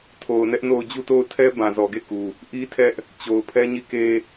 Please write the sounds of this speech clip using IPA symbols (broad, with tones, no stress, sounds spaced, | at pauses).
tʰ o˨ ʊ̯ n ɛ˦ ʔ n o˦˨ ʊ̯ d͡ʑ u˦˨ t o˦˨ ʊ̯ tʰ ɛ˦ b ã˨ z ɔ˨ ɡ e˦˨ k u˨ | ʔ i˦ tʰ ɛ˦ ʔ | t͡ɕ o˨ ʊ̯ pʰ ɛ˦ ɲ i˦˨ k e˦